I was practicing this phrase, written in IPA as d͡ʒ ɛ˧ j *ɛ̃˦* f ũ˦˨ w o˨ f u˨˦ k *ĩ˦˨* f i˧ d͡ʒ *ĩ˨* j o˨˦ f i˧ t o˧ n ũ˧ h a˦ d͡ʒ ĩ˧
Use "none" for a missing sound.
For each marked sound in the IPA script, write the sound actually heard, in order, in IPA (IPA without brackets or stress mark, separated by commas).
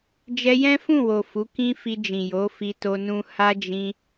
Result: ɛ̃˦, ĩ˦, ĩ˨